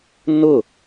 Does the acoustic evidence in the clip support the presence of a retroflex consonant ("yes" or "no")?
no